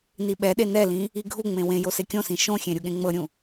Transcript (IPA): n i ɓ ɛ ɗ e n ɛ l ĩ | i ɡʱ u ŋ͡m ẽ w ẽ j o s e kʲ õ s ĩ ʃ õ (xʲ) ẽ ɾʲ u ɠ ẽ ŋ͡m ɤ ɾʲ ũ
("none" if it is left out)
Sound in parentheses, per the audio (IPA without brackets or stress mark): xʲ